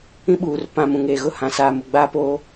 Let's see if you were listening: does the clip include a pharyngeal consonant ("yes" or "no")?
no